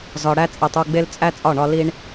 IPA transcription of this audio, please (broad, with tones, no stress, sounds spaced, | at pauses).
z ɒ˨ ɽ æ˦ t͡sʼ e˨ tˤ u˦˨ ɡ͡b e˦ l t͡sʼ æ˦ t͡sʼ ɒ˦˨ ɳ ɒ˧ l i˧ ɳ